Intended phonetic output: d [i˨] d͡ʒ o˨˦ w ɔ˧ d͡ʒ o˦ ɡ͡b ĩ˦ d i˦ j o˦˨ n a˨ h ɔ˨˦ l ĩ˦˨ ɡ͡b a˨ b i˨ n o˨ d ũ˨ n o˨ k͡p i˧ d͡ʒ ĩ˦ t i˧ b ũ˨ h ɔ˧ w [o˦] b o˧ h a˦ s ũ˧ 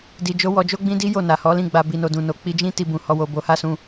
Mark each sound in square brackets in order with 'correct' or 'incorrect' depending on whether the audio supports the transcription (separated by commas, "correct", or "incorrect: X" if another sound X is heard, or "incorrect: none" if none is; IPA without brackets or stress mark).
correct, incorrect: o˧